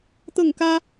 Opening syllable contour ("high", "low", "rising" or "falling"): falling